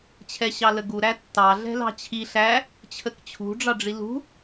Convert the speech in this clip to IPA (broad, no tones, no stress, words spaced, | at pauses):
t͡ɕʰɛɕɑləɡu ɾætːɑ ɮɛ̤lɑ̤t͡ɕʰi ɬæ | t͡ɕʰəkt͡ɕʰṳ ɖ͡ʐɑɖ͡ʐilṳ